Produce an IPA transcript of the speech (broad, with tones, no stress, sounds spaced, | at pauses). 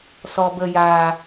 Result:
s ɔ˨ b ə˨ j a˨